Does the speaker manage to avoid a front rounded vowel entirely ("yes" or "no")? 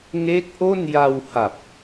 yes